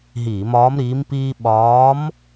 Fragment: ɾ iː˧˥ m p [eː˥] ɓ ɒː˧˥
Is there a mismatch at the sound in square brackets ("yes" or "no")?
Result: yes